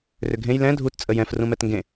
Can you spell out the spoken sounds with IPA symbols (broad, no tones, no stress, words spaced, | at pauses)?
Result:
rʏɡʱẽj lɛ̃ dʱut t͡sʼəjɛ̃f rũmɛtŋɡẽ